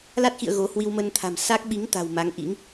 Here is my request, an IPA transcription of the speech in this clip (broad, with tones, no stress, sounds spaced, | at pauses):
l a˦˥ t̚ x ḭ˧˨ ə̯ ɣ o˨˦ h w i˧ w m ə˧ n t̪ʰ a̤˨˩ m s a˦˥ k̚ ɓ i˨˦ ŋ t̪ a̤˨˩ w m a˨˦ ŋ ʔ ḭ˧˥ ŋ